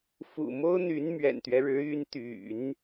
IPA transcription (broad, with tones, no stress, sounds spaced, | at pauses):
f ṵ˨˩ m o˥ ʊ̯ n̪ y˧˥ n m ɥ ɛ̰˨˩ n t̪ ɥ ɛ˦ ɻ ɻ̩˧˥ y˧˥ n t̪ y̰˨˩˦ n